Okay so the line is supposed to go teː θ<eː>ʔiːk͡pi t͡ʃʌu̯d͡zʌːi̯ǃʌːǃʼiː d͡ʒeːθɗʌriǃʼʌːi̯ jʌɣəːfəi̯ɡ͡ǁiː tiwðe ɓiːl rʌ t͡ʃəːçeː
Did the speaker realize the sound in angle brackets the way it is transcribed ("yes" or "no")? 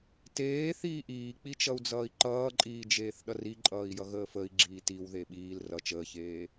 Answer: no